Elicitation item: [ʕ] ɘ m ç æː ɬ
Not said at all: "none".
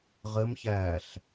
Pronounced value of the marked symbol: ʁ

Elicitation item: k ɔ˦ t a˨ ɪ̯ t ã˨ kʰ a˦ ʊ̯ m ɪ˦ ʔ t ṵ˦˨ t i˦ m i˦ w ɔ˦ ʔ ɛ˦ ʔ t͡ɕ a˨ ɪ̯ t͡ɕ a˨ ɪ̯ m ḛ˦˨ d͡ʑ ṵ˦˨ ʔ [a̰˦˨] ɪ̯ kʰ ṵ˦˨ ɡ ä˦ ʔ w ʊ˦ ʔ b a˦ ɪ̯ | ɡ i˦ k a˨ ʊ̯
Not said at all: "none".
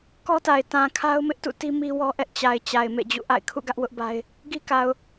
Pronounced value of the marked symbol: a̰˦˨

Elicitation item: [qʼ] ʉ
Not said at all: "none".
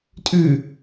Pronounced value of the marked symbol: tʼ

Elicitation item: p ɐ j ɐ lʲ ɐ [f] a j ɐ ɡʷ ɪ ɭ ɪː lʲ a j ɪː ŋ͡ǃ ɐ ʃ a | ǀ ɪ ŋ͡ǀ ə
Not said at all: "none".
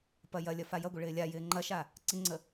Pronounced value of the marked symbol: f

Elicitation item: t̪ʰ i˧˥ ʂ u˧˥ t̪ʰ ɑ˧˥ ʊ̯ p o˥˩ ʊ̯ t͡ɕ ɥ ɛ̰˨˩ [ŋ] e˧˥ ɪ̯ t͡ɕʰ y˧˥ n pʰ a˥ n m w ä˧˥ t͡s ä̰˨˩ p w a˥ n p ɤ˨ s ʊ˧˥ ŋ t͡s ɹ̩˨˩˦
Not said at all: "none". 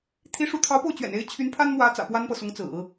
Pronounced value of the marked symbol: n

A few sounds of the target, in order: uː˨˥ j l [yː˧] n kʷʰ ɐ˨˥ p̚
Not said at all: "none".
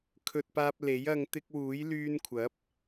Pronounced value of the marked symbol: yː˧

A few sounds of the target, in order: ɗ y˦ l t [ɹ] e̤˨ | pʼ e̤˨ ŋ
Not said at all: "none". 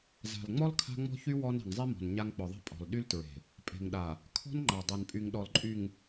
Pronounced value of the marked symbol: ɹ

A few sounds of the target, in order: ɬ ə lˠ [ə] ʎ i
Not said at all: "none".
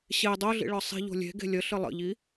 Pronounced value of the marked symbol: ə̰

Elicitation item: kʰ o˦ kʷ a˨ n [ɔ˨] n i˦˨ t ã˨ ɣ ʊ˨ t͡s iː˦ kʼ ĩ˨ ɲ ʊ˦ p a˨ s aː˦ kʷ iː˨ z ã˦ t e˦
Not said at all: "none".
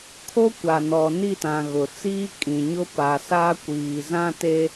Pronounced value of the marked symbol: ɔ˨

